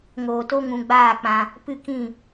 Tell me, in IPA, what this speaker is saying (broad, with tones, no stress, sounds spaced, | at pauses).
ŋ oː˨ t o˧ ŋ ũ˨ ɡ͡b aː˦˨ k͡p ã˧ | p ɨ˦˨ k ĩ˦˨